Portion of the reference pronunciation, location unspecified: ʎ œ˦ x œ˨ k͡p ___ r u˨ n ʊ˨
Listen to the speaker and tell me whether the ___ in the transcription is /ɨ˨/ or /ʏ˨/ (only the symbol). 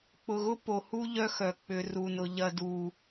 ʏ˨